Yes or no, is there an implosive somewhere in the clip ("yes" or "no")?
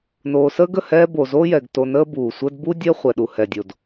yes